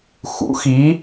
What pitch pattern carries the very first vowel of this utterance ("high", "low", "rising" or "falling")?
rising